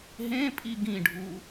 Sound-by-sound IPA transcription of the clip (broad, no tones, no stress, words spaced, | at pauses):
ɦẽ pʼiɡĩɖʱu